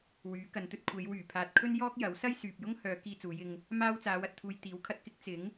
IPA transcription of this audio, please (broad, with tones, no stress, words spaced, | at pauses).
wyː˨˥kɐ˨˧nt̪ɵ˥t̚ kʷʰe˨˧j wyː˨˩pʰaː˨t̚kʰɵ˥njɔː˥k̚ jɐ˨˥w sɐ˥jsyː˨p̚jʊ˥ŋhœː˨˧ kiː˧t͡suː˨˧jɪ˧ŋ | maː˧w t͡saː˨˧wɐ˨t̚t̪ʰuː˨j t̪iː˨˥wkʰɐ˨t̚ kɪ˥k̚ t͡sɪ˨˥ŋ